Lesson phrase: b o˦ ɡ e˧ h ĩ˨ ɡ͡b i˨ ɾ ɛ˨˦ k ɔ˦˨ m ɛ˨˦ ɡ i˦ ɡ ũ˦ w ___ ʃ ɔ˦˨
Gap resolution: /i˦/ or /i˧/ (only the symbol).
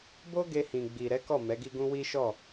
i˦